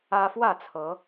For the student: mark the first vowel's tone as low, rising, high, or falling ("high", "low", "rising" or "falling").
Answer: high